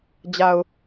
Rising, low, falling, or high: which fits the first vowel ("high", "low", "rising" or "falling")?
low